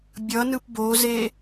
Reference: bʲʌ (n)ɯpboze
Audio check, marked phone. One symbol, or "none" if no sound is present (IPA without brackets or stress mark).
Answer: n